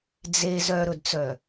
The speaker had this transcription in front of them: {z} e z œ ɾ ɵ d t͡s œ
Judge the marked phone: incorrect: d͡z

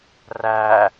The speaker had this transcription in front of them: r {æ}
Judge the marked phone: correct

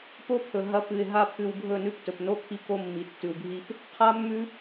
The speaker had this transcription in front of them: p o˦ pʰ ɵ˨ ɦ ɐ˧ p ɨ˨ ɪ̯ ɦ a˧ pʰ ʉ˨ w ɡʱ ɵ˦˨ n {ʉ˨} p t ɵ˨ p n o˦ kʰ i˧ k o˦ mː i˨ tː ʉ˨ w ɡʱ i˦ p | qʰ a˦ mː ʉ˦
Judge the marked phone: incorrect: ʉ˦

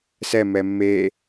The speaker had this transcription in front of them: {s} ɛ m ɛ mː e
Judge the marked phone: correct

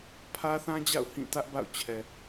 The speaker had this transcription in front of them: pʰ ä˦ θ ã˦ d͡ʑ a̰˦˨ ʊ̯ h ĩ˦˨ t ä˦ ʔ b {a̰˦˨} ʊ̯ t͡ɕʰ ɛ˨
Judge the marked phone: correct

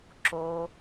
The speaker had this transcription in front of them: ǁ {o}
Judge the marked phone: correct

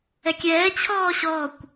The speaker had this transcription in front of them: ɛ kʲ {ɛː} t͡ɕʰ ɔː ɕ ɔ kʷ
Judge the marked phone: correct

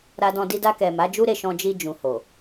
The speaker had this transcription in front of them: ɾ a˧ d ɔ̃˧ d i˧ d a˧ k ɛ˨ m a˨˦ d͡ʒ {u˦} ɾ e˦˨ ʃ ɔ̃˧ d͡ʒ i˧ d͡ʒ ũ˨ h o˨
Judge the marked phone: correct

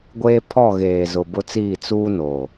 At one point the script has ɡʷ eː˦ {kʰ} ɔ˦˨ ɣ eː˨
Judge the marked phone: incorrect: pʰ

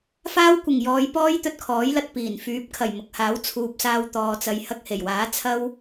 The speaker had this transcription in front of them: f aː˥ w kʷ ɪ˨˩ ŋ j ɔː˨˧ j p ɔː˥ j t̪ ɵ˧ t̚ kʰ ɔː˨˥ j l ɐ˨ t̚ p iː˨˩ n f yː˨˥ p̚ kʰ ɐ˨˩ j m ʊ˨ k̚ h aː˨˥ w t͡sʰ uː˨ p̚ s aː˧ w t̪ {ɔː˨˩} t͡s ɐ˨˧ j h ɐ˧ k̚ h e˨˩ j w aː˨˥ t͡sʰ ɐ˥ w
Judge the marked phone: incorrect: ɔː˨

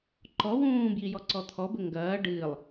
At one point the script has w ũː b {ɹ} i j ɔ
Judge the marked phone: incorrect: j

